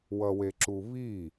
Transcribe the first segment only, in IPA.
w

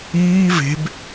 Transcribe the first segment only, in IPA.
iː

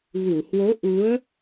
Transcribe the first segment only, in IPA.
ɣ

